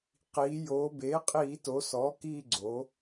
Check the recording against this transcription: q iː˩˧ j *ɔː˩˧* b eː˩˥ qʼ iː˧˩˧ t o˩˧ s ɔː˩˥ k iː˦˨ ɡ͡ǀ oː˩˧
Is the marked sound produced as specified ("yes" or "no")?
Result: no